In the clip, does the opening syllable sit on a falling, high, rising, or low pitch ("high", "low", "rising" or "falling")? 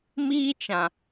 high